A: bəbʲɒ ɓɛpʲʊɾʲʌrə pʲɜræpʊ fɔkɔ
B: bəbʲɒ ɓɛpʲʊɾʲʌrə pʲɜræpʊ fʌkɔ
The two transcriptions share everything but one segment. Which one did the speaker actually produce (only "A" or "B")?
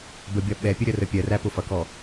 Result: B